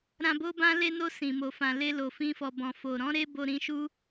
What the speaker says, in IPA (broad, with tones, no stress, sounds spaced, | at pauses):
ɾ ã˧ b o˦ b ã˦ l e˧ n o˧ s ĩ˨ m o˨ f ã˨ l e˧ l o˨ f ĩ˧ f ɔ˨ b ɔ̃˨ f o˨ ɾ ɔ̃˨˦ ɾ e˦ b o˧ ɾ ĩ˧ ʃ u˦